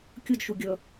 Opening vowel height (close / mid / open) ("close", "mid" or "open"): close